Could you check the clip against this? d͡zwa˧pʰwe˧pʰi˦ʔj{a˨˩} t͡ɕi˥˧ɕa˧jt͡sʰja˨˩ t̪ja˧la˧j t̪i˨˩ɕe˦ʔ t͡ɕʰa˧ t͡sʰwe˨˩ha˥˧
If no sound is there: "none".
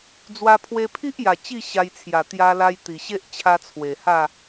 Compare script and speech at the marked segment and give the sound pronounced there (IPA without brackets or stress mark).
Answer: a˨˩